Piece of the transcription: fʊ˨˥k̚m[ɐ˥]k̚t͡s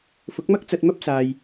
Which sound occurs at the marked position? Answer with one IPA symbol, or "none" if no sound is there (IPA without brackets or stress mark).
ɐ˥